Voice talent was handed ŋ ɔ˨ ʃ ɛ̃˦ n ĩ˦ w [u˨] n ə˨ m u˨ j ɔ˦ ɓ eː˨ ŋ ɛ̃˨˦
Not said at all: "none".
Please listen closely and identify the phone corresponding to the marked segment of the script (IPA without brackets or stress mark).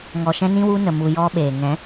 u˦